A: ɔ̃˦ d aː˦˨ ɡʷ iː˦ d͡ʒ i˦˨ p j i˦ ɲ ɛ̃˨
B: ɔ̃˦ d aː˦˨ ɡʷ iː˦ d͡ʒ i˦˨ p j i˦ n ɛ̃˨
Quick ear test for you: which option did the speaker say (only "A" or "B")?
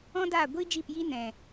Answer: B